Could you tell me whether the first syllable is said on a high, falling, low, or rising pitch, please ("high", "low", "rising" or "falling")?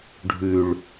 low